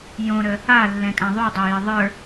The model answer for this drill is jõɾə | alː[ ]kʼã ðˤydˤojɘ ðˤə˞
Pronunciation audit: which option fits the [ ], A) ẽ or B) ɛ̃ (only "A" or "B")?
B